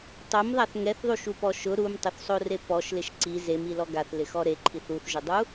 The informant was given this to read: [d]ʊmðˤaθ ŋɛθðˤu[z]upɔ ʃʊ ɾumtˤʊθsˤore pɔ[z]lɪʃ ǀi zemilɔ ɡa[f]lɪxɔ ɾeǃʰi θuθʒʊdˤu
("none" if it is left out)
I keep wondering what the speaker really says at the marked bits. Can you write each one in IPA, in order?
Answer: tˤ, ʃ, ʃ, θ

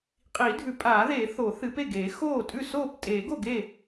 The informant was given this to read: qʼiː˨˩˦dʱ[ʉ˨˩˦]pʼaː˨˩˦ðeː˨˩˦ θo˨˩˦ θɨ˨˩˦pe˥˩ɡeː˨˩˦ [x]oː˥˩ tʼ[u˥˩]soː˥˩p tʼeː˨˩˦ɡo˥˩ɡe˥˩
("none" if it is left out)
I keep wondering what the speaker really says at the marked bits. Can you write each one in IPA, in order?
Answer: ʉ˨˩˦, x, ʉ˥˩

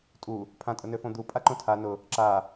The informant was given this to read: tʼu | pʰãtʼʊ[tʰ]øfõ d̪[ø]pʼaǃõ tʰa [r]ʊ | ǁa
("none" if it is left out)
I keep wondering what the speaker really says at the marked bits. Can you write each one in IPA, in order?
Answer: n, u, n

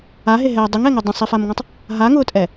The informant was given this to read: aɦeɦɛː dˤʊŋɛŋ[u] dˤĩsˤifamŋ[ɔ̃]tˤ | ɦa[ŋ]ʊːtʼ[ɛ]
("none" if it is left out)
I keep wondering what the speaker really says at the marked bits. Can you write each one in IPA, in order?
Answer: o, ɔ̃, ŋ, ɛ

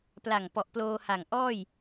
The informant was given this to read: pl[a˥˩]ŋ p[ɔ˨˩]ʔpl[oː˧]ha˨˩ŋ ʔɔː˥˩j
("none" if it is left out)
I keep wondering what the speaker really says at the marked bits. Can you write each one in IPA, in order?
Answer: a˨˩, ɔ˨˩, oː˧

